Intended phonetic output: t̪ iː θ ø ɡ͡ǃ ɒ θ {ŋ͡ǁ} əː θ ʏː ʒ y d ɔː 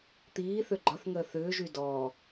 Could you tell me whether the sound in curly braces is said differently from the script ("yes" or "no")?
yes